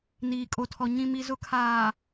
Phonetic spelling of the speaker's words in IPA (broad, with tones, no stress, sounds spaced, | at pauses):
n iː˨ kʼ o˨ tʰ ɔ˨ ɲ ĩ˨ m i˨ z ʊ˨ kʰ aː˨